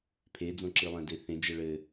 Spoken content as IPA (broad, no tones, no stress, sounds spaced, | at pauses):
pʰ e d͡z õ ǁ ɨ lˠ ɛ̃ d e θ ẽ d͡ʒ ɛ ɭ ɘ